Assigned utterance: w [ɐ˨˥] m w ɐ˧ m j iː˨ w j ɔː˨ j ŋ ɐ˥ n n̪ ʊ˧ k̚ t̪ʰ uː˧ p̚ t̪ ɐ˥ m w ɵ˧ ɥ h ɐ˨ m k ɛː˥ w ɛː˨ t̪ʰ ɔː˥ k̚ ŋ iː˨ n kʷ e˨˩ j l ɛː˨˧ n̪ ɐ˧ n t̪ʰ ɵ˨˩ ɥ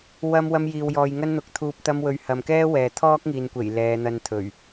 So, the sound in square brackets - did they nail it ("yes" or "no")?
no